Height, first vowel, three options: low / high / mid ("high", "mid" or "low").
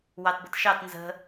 low